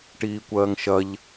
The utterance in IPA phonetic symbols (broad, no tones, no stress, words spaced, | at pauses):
ʈiːkʷɜːŋʃɐʎ